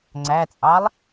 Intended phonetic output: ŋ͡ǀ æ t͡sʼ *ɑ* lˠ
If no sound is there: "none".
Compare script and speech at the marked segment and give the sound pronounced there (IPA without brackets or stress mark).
ɑ